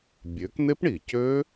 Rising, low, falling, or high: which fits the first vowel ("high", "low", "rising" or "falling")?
rising